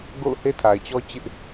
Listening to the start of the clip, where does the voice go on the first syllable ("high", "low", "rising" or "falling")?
falling